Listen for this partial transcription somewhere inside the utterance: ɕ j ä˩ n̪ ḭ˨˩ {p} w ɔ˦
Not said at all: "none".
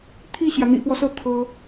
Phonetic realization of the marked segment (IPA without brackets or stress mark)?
p